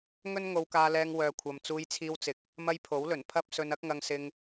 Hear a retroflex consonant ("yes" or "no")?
no